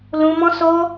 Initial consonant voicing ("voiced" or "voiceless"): voiced